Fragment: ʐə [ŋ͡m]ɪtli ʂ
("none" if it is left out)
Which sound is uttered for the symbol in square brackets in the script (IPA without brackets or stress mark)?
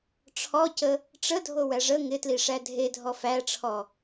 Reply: ŋ